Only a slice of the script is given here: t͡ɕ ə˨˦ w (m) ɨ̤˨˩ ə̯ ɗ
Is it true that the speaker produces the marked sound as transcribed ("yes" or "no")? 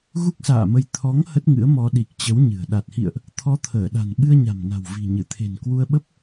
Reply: no